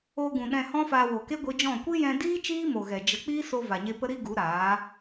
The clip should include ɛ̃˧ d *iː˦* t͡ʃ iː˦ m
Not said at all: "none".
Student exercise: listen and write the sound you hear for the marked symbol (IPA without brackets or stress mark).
iː˦